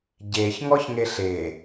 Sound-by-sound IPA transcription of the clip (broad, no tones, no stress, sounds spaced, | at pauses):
ɟ e ç ŋ ɔ ç ŋ e ɬ e